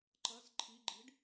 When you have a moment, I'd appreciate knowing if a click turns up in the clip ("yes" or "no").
yes